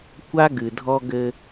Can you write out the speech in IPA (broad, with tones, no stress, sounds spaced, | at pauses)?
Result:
kʷ a˦ ɡ ɨ˨ dʱ ɔ˦ ɡ ɘ˦